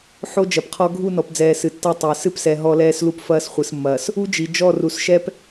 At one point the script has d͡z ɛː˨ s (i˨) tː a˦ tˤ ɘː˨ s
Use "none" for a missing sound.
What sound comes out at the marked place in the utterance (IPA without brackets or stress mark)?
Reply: ɨ˨